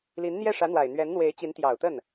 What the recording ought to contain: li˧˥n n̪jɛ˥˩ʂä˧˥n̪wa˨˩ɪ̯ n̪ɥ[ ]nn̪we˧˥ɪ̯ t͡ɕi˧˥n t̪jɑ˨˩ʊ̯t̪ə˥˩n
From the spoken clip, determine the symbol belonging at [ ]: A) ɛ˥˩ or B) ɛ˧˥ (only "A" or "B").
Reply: B